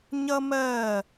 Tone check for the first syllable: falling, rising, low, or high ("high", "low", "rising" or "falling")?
high